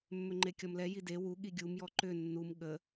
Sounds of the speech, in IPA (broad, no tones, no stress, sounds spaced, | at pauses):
mː ʏ ŋ͡ǃ e kʲ ɔ m l ɛ j i d e w u ɠ i ɡʲ u m j ɔ ǃ ʏ nː u m ɠ ə